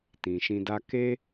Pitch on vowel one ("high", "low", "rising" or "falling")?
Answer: low